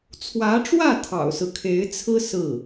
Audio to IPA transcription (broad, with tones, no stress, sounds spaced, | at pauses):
t͡sʰ w ä˧˥ ʈ͡ʂ w ä˥˩ t̪ʰ ɑ̰˨˩ ʊ̯ s ɹ̩˦ kʰ e˧˥ ɪ̯ t͡sʰ ɹ̩˥ s ɹ̩˥˩